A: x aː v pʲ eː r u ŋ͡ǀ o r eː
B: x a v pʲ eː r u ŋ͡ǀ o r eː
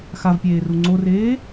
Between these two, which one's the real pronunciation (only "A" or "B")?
B